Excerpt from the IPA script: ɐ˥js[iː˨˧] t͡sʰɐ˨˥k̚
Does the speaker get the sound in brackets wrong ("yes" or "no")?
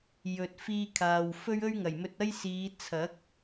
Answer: no